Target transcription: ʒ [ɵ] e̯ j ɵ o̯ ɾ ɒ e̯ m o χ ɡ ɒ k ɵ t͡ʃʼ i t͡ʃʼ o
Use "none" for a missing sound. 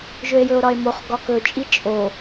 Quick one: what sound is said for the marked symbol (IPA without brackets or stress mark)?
ɵ